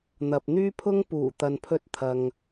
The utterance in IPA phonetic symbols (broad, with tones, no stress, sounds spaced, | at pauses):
n̪ ɐ˨ p̚ n̪ yː˥ pʰ ʊ˥ ŋ p uː˨˩ t̪ ɐ˨ n pʰ ɵ˧ t̚ t̪ʰ ɐ˨ ŋ